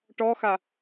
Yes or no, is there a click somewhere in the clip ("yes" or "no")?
no